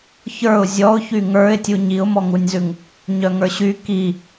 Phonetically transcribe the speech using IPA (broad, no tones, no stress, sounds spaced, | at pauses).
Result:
ç ə˞ ʊ̯ zʲ ɔ ʊ̯ ç y ŋ ə˞ ɪ̯ tʲ u ɲ i ʊ̯ m ɔ ŋ u nʲ z ʉ ŋ | ɲ œ ŋ ə˞ ɕ y k i